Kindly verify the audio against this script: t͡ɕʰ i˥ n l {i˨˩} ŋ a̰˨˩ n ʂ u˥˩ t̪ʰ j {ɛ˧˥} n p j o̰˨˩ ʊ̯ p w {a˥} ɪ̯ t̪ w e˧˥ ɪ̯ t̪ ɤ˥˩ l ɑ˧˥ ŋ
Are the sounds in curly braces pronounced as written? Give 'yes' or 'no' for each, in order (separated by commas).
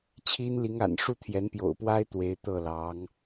no, yes, yes